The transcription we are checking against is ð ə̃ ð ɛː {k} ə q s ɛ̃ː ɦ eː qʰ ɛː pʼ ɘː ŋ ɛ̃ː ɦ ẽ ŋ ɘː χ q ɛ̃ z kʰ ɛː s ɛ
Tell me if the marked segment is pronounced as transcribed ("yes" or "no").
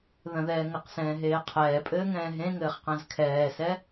no